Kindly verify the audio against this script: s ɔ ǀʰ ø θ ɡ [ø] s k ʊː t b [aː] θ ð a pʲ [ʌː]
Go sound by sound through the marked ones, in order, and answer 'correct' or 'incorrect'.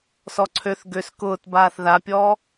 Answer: correct, correct, incorrect

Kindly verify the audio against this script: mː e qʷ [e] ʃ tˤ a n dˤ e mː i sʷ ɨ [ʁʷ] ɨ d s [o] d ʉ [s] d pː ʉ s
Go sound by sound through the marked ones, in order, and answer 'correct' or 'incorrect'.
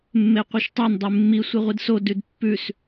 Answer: incorrect, correct, correct, incorrect

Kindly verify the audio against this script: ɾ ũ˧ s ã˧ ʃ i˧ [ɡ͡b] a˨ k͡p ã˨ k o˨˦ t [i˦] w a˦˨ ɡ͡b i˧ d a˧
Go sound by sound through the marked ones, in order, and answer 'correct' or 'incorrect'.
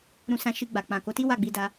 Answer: correct, correct

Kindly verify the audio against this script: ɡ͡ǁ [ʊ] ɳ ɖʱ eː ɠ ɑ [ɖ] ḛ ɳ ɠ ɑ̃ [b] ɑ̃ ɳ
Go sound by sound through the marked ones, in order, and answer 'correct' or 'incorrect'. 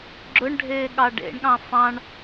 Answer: correct, correct, incorrect

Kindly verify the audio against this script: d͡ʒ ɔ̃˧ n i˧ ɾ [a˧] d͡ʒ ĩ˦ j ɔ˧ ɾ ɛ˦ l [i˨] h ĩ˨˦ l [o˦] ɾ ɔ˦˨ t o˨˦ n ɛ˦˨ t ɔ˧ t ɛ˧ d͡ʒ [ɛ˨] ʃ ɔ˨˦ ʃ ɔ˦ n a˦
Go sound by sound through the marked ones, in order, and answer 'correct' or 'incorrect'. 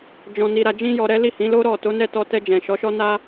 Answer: correct, incorrect, correct, incorrect

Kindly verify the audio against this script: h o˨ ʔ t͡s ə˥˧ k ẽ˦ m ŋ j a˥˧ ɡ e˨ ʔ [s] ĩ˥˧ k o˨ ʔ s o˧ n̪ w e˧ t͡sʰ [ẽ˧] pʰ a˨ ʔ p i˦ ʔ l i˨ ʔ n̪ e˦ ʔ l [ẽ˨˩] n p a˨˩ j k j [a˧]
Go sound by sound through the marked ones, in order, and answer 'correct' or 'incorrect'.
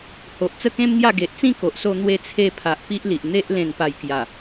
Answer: incorrect, incorrect, correct, incorrect

